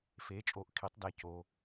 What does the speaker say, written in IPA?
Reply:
f e˩˧ t͡ʃʼ o˩˧ ʔ kʰ i˩˧ tˤ d æ˩ c o˩

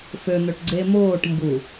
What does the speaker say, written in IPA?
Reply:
f ø n̪ ø ʈ ɡ͡ǀ e m oː ʈ m b u

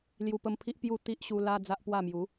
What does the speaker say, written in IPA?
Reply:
l j u˧ p ə˧ m pʰ i˦ ʔ p j u˥˧ t̪ i˦ ʔ ɕ u˧ l a˦ d͡z a˦ ʔ p w a˥˧ m j u˨˦

